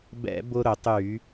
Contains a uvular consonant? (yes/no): no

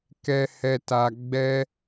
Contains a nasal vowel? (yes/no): no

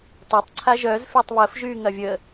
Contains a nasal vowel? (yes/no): no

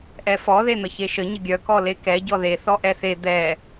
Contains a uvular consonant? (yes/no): no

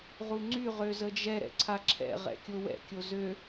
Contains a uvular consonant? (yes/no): yes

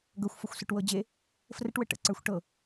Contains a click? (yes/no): yes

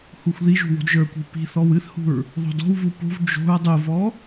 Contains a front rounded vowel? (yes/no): no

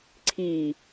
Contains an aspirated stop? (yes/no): yes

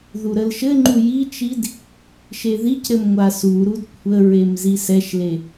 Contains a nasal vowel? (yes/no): no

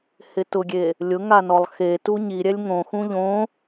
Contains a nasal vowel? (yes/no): yes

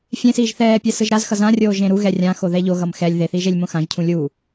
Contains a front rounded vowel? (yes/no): no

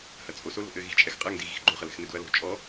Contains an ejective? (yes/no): yes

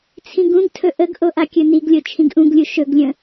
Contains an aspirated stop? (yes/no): yes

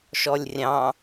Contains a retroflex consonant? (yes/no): no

